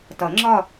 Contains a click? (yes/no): yes